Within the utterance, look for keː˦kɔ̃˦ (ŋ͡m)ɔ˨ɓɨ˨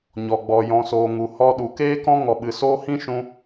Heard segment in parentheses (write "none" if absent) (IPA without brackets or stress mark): ŋ